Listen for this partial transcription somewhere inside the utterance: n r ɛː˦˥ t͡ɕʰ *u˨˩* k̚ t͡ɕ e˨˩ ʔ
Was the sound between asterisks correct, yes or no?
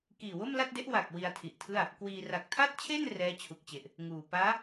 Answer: yes